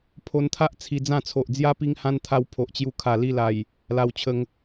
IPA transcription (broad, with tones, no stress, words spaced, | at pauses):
pʰo˧nt̪ʰa˦ʔ t͡sʰi˧d͡zã˥˧ t͡sʰo˨ʔd͡zja˦ pi˧ŋhã˧nt̪ʰa˧w pʰo˨ʔt͡ɕju˧ kʰa˨˩li˧la˨˩j | la˧wt͡ɕʰə˧ŋ